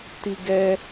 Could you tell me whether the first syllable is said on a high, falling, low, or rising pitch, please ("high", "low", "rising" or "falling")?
high